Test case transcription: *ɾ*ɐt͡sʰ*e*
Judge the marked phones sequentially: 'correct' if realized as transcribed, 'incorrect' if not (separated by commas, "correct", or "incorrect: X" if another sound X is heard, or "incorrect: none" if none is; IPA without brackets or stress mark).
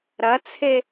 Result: correct, correct